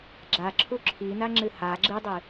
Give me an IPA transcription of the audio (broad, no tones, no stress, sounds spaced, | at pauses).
ɡ͡ǁ a ǁʰ u ǁʰ i n a ŋ͡ǁ ɨ h a ɡ͡ǁ ɨ dˤ ɨ